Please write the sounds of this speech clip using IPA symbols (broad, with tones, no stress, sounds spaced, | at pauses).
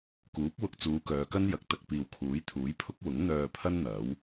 k uː˨˥ p̚ w ʊ˧ k̚ t͡s uː˨˧ k œː˨˧ k ɐ˥ n j ɐ˨ k̚ t̪ ɐ˧ k̚ p iː˨ w kʰ uː˨˥ j t̪ʰ uː˨˥ j pʰ ʊ˥ k̚ w ʊ˨˥ ŋ n̪ œː˧ pʰ ɐ˥ n n̪ ɐ˨˥ w